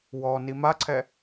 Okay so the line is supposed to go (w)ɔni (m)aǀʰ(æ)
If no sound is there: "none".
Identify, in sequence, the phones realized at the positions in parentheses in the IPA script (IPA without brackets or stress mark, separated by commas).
w, m, ɛ